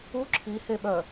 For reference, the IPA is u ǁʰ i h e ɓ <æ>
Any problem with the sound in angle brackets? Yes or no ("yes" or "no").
yes